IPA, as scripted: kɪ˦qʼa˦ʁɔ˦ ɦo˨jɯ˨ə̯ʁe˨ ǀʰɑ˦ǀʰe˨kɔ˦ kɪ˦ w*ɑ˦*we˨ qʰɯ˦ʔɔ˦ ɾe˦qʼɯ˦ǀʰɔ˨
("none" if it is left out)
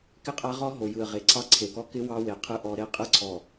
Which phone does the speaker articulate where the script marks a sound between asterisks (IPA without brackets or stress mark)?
ɑ˦